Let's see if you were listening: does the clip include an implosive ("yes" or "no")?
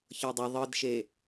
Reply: no